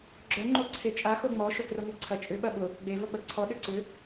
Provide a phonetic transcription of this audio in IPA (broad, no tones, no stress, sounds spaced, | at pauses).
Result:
ɡ͡ǁ œ ŋ͡ǃ o ǀʰ e t͡ʃʼ a x o ŋ͡m ɔ ʃ o k r ɛ ŋʷ œ ǀʰ ɐ t͡ʃʼ ʏ ɓ ɐ ɓ ʊ | ɡ͡b e v ɐ ɡ͡b ɐ ǀʰ ɔ ɗ ʏ ǀ ʏ